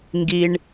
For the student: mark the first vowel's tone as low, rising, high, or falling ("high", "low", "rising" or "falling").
low